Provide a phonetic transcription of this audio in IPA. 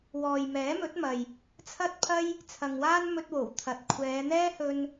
wɔː˨jmɛː˨˥mɵ˨˥t̚ mɐ˨j | t͡sʰɐ˥t̚pʰɐ˥j | t͡sʰɐ˨ŋwaː˥n mɵ˧t̚wo˨˩w t̪ʰɐ˨t̚ kʷʰɛː˨˧n̪ɛː˥hɵ˧n

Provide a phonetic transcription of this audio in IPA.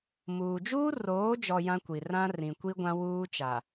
muː˨d͡ʒuː˦roː˨˦d͡ʒɔ˨ jã˦kʷi˨ rã˦rĩ˨kʷi˦ ɡʷã˦ wuː˦t͡ʃa˨

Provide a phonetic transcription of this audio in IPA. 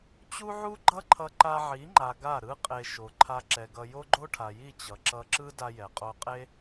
t͡ɕu˦ʕu˦ɡ͡ǃʌ˦ǃʰʌ˧ ǃa˧ʕi˨˦ŋ͡ǃa˨ ɡa˦˨ɾɯ˦ qʼe˧ ʃo˨ǃʰa˧ǁɛ˨ɡʌ˧ jo˦ɡ͡ǃo˦ʈʰa˨ji˦˨ t͡ɕʌ˨ǁʌ˧ǁɯ˦ da˧jɛ˨qʼo˧qʼe˦

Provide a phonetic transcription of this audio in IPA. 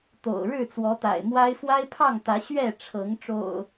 t̪o̰˨˩ʊ̯ ɻɻ̩˥˨t͡swɔ˨˦t̪a̰˨˩ɪ̯mwa˦ɪ̯ fwa˦ɪ̯pʰɑ˥˨ŋt̪ä˨˦ ɕɥɛ˥˨ʈ͡ʂʰɤ˨˦ŋ ʈ͡ʂo̰˨˩ʊ̯

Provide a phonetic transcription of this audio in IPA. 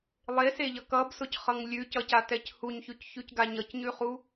lˠeseʎʌ kʌbsʊcχʌŋ lʲʉcʌcatɛc huɲçʉcçʉcɡa ɲʌcɲʉχu

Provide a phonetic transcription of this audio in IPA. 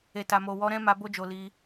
e˨ta˨mo˨ wɔ˨˦ɾɛ̃˦ma˧ bo˦d͡ʒo˧ li˧

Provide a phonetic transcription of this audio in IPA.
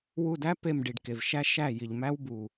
wu˧˩dæ˥ pe˧˩mɖi˩ɖ ke˩vʃæ˥ ʃæ˧˩ ji˩ʎ mæ˥wbu˩

